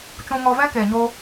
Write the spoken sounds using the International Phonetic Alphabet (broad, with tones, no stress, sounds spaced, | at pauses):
t͡ʃ ũ˧ ŋ ɔ˧ v ɛ̃˦ k eː˨ ɲ oː˧